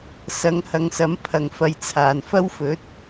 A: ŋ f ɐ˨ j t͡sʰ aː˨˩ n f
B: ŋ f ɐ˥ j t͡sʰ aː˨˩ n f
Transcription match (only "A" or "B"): A